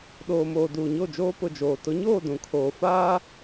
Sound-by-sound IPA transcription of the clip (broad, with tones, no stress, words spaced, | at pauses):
ɗoː˨moː˨ duː˨ɲo˦˨d͡ʒoː˦ pʊ˦˨d͡ʒoː˨ tʊ˨˦ɲoː˦˨ dũ˨kʰoː˨ faː˦